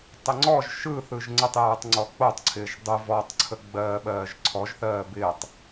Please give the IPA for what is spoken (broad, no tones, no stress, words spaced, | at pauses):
tˤɪŋ͡ǀɔʒ ʃɯθɯʒ ŋ͡ǀətˤjɯːtˤŋ͡ǀɔ k͡potˤǀʰɪːʒ dˤɯ vɔtˤǀʰəɡ͡bɜː ɓɜːʒǀʰɔʒθɜː bɪːtˤ